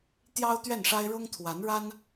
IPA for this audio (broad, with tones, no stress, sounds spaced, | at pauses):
t̪ j ɑ˥ ʊ̯ t̪ ɥ ɛ˥˩ n ʂ a˥ ɪ̯ ɻ ʊ˥ ŋ t̪ʰ w a˧˥ n ɻ a˥ n